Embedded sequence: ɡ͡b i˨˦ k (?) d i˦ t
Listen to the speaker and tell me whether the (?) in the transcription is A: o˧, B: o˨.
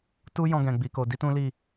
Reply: A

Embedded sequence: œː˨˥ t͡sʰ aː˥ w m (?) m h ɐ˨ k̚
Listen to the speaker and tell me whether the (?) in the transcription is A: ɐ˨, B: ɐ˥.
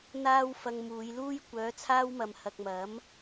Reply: A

